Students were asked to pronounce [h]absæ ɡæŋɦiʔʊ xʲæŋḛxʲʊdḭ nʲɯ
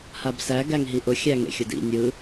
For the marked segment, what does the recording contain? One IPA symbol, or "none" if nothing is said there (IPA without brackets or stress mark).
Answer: h